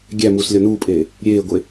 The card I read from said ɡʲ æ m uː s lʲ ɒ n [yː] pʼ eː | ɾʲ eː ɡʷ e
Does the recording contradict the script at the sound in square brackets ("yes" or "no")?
yes